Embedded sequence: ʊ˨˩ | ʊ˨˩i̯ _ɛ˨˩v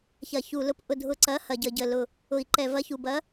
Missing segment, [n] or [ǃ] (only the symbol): ǃ